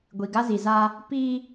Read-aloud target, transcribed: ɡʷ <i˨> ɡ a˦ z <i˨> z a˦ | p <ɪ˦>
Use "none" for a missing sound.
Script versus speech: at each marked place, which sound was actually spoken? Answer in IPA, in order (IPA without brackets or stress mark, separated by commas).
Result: i˨, i˨, i˦